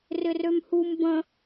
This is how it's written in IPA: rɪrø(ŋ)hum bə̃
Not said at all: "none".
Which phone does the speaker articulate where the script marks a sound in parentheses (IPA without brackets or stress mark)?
m